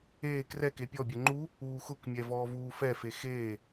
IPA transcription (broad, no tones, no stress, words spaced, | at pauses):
eː krɛke pʲɔbʲɛ ŋ͡ǃu | uːxʊkmʲɛ vɔːvuːfɛfe xeː